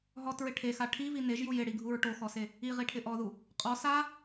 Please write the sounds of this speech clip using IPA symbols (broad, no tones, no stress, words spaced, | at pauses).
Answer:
ɦɔtɹɪ ʈʰexa ʈʰivi neʒju jɪɽiɡʱuɹ ʈoxɔse | iʁiʈʰɪ ʔɔðu | qʼɔ sa